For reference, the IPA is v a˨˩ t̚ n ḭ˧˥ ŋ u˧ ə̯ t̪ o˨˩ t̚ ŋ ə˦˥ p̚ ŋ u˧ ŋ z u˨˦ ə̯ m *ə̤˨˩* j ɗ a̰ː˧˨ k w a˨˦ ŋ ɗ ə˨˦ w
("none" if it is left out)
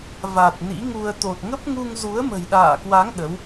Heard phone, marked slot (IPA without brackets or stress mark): ə̤˨˩